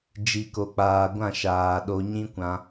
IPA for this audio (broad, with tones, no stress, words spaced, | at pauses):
d͡ʒi˨ko˨k͡paː˨ ɡʷã˦˨ʃaː˨ɗo˧ ɲĩ˦kʷã˧